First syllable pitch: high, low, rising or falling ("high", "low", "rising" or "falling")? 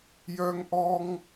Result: high